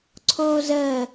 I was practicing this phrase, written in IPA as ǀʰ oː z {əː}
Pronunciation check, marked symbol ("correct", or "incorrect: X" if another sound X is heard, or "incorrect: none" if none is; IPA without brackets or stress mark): correct